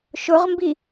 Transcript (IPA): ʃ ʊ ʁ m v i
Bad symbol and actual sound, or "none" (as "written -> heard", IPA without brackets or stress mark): v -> b